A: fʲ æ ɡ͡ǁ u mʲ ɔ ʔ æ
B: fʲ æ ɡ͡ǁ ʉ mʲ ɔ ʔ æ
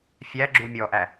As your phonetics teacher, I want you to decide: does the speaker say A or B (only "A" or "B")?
A